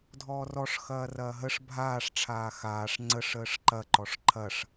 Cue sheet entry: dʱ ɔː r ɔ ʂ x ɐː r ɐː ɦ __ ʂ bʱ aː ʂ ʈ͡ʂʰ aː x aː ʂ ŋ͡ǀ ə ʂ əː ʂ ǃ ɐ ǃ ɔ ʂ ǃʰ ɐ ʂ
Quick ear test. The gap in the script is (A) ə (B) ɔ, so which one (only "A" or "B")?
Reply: A